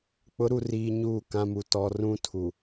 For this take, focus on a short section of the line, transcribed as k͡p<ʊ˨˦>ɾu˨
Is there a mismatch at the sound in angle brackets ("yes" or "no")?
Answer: no